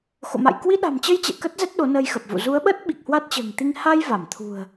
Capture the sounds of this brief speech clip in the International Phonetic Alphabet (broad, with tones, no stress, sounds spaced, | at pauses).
x o̰˧˨ m a̰˧˨ j k w i˧ ɗ a̤˨˩ m t͡ɕ ə˧ j t͡ɕ ɛ̰˧˨ k ə˦˥ t̚ z ɛ˦˥ t̚ ɗ o˨˦ n ə˧ j x ə˨˩ p̚ v ṵ˧˨ z u˨˦ ə̯ ɓ ə˦˥ t̚ ɓ i˨˩ k̚ h w a˦˥ t̚ t͡ɕ ə̤ː˨˩ ŋ t̪ i˧ ŋ h a˧ j v a˧˩ m t̪ʰ ṳ˨˩ ə̯